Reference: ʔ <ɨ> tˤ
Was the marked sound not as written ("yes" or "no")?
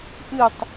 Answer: no